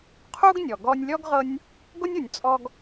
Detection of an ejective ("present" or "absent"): present